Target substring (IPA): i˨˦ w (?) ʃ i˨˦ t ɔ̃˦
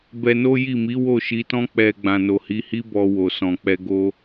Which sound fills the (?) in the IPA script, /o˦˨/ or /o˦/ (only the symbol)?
o˦˨